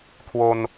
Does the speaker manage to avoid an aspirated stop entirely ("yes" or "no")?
no